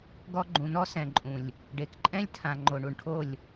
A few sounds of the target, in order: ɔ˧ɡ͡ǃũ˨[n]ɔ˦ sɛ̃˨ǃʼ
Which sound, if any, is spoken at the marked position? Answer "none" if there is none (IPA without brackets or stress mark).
n